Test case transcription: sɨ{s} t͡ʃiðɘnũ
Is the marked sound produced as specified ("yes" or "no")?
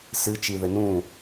no